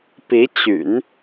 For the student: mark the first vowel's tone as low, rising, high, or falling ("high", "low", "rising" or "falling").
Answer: rising